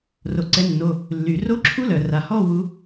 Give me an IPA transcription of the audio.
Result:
r o˩ ǀ ɛ˨˦ nː o˩˧˩ | lː y˩ r o˦˥ ǁʰ u˦˥ l œ˩ r a˩ h ɔ˥˧ w u˨˦

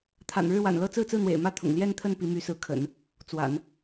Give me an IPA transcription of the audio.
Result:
t̪ʰ a̰˨˩ n ɻ ɻ̩˥˩ w a̰˨˩ n l ɤ˥ t͡s ɹ̩˥˧ t͡s ɹ̩˥˩ n̪ w ḛ˨˩ ɪ̯ m ä˥˩ t̪ʰ ʊ̰˨˩ ŋ l j ɛ˥˧ n t̪ʰ ə˥˩ n p i˧˥ m y˧˥ s ɹ̩˧˥ kʰ ə̰˨˩˦ n | t͡s w a̰˨˩˦ n

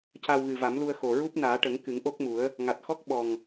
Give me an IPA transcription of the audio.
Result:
c a˧ w ɣ ɨ˨˩ v a˨˩˦ m l u˧ ə̯ x o˨˩ ɹ u˦˥ p̚ n aː˨˩˦ ʈ ə˨˩˦ ŋ k ɨ˨˩˦ ŋ ʔ o˦˥ k̚ m u˨˩˦ ə̯ | ŋ a˨˩ t̚ x ɔ˦˥ k̚ ɓ ɔ˨˩ ŋ

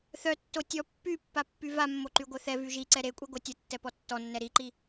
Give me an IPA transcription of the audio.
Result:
θ œ tː o tʲ ɔ pː y pː a pː y v a mː o ǃ y ɡʷ œ θ ɛ v y ʒ i ǀ ɛ ɾ e kʷʼ i ɡʷ œ tʲ ə tː ɛ p ɔ tː ɔ nː ɛ ɾ i ǃ i

